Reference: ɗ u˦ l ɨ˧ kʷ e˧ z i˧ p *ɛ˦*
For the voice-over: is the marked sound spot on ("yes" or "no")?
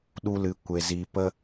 no